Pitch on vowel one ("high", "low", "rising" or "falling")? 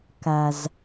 low